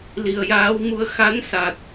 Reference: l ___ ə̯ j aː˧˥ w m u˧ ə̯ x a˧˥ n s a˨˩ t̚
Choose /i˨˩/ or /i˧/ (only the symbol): i˨˩